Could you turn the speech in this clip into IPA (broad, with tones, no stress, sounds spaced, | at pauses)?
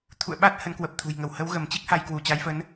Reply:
t̪ʰ ṵ˧˨ ə̯ ɓ a˦˥ t̚ h ə˨˦ n k w ə˨˩ p̚ t̪ʰ ṳ˨˩ j ŋ ə˧˩ w h ə˨˦ w ɣ ə˧˩ m t͡ɕ i˦˥ k̚ h a˧ j k w u˧˩ t͡ɕ a˨˦ j f ə˨˦ n